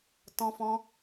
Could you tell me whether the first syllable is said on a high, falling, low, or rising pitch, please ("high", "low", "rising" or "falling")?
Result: high